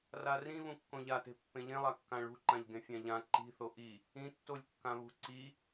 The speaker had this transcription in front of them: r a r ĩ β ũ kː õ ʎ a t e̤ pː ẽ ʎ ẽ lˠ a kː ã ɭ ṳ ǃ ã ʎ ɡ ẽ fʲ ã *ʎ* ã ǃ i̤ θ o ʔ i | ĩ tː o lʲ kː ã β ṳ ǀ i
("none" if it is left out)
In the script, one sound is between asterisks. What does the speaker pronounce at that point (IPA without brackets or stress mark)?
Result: ʎ